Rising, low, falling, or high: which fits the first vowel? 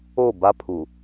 falling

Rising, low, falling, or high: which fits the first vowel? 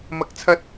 rising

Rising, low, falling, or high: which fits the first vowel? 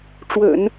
low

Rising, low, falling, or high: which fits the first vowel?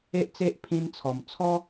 high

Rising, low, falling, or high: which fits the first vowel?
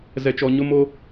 low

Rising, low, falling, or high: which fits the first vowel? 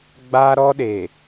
high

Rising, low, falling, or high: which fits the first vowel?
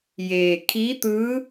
low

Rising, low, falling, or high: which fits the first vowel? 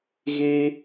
high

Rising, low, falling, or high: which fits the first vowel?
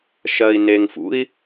low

